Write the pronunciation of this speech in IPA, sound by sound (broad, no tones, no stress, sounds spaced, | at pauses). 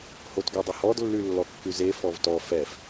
h o t ɡ ø dˤ ɵ h ɔ d lː ʉ lː ɔ kː ʉ z e f ɔ v t ɔ f ɛ f